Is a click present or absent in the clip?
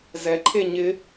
present